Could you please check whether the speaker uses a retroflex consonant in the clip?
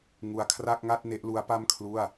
no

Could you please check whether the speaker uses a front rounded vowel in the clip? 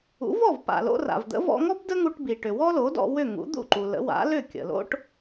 yes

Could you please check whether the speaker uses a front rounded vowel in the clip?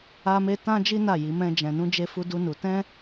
no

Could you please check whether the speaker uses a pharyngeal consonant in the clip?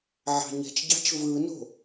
yes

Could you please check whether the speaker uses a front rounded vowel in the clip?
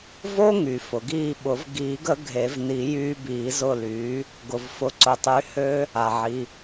yes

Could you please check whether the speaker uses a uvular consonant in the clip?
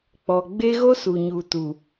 no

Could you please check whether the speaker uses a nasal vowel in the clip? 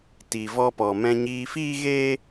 yes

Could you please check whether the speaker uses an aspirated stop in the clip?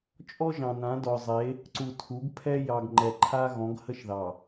yes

